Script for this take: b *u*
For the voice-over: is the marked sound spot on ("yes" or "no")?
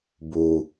yes